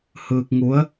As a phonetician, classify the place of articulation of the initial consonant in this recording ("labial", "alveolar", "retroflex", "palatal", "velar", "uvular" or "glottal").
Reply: glottal